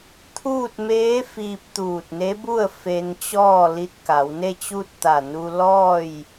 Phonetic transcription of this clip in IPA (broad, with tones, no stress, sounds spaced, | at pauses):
t̪ʰ uː˥˨ t̚ m eː˧˥ f iː˧ p̚ t̪ uː˧˩ t̚ n e˧˥ b u˥˨ ə̯ f e˧ n t͡ɕ ɔː˥˨ l i˧ t̚ k a˩˧ w n e˥˨ t͡ɕ u˥˨ t̚ t̪ a˧˩ n u˧ l ɔː˥˨ j